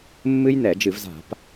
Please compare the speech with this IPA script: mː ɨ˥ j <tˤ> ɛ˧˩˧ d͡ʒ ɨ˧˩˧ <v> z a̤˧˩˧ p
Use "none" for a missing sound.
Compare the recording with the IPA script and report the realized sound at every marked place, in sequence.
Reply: n, v

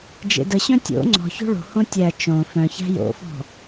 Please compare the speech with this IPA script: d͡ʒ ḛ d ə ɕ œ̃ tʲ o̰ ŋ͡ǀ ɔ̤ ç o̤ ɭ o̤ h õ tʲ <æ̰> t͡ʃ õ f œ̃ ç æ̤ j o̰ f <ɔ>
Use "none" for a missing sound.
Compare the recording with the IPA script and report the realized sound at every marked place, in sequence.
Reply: æ, ɔ̤

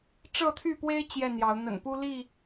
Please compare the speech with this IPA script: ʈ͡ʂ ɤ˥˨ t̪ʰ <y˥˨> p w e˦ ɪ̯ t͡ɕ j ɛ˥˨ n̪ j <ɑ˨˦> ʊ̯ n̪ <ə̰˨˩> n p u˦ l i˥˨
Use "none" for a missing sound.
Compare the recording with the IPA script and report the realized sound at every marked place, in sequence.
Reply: y˥˨, ɑ˨˦, ə̰˨˩

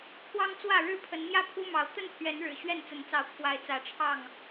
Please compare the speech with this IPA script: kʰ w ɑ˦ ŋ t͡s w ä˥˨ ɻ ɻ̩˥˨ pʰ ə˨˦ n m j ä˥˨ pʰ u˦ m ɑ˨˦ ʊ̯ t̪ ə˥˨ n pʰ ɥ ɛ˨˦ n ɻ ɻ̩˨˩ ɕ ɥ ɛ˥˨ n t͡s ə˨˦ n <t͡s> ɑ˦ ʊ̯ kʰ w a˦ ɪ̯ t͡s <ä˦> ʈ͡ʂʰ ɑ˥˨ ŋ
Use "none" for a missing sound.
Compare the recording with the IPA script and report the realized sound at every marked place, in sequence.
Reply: t͡s, ä˨˦

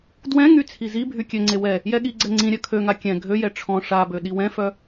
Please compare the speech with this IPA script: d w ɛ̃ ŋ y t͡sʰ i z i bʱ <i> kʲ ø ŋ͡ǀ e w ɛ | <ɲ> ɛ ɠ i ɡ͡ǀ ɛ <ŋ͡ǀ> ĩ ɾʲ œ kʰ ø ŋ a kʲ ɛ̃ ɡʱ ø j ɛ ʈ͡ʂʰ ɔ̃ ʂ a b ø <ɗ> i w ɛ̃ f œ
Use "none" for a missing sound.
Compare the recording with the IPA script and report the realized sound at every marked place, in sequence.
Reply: y, j, ŋ͡ǀ, ɗ

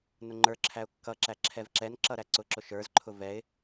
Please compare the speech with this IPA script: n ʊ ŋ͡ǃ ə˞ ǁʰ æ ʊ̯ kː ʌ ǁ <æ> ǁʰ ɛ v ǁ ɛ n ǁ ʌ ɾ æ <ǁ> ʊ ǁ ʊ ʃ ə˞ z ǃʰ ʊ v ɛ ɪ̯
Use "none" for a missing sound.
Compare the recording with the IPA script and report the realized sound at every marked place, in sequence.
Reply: æ, ǀ

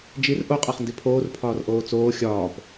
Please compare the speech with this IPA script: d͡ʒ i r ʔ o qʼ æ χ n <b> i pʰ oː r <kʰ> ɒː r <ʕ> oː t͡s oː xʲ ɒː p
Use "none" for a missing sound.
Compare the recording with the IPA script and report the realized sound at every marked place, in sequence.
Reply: d, pʰ, ʔ

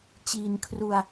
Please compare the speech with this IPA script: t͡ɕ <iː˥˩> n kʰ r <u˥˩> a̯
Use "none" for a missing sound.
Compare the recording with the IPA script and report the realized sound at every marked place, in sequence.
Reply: iː˧, u˧

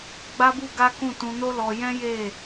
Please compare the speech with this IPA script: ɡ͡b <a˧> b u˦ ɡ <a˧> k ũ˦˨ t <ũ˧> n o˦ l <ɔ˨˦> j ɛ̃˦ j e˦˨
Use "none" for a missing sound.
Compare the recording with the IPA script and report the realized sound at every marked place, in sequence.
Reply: a˦, a˦, ũ˧, ɔ˧

